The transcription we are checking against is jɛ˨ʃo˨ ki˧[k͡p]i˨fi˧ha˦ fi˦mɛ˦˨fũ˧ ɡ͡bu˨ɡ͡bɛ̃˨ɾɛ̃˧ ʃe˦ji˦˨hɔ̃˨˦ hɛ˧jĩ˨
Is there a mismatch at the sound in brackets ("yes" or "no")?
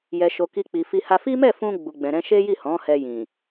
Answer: no